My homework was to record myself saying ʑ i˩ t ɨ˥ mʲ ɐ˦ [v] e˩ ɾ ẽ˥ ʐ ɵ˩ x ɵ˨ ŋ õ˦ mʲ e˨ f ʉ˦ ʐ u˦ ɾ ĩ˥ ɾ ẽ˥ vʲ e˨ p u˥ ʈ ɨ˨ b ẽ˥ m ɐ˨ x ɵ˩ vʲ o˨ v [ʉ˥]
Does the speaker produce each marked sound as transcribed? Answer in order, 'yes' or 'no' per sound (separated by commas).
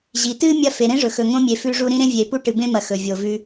no, no